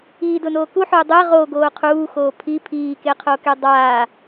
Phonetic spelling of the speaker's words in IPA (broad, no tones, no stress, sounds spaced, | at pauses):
iː d ʊ n oː k u ħ ʊː dˤ ɛ ʁ o ɡ oː qʰ uː x oː pʰ i pʰ iː k e qʰ o k ɛ dˤ aː